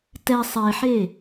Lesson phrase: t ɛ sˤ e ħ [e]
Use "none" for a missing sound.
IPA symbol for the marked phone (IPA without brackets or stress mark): e